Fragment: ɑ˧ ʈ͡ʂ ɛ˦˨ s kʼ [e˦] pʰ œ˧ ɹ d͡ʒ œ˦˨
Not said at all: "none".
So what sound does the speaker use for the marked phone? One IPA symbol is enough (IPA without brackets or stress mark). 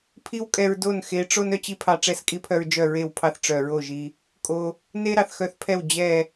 i˦